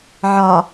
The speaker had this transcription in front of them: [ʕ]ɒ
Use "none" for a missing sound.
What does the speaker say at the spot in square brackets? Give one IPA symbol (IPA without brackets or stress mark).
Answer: ʕ